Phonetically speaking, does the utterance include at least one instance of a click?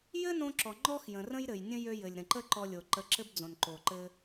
yes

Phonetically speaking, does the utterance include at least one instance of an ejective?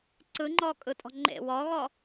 yes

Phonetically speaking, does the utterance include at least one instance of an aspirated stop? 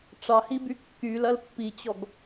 no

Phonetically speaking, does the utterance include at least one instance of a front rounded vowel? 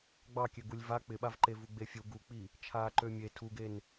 yes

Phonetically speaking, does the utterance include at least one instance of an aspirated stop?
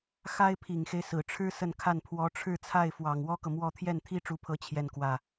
yes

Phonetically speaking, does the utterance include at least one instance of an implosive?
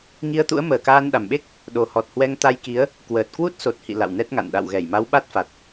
yes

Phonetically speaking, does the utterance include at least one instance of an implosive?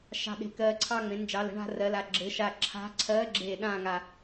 yes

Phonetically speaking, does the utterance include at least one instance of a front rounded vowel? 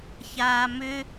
yes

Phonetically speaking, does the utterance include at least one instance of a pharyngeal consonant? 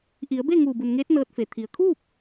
no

